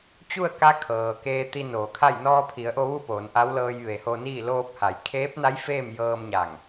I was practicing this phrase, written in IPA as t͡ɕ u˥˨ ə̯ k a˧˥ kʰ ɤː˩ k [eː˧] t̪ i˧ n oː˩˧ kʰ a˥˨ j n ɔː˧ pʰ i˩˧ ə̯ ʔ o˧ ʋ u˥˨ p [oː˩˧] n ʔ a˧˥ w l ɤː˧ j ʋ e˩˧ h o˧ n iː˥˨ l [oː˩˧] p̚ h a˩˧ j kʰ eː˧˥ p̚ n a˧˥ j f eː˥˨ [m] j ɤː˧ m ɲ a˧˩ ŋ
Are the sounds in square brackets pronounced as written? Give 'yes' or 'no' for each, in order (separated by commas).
yes, yes, no, yes